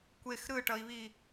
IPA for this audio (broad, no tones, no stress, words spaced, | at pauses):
kʷex ɾɯʈʌi̯βi